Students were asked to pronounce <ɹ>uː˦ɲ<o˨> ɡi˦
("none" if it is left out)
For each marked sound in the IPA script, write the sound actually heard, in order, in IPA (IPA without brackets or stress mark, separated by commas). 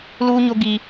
l, o˦